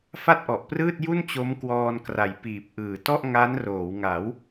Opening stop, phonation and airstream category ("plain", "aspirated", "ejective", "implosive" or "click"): plain